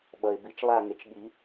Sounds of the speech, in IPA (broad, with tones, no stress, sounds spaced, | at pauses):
ɓ ʌ˩ ɪ̯ b i˨˩˦ t͡ʃ lˠ a˦˨ ŋ e˩ t͡ʃ ɠ i˨˩˦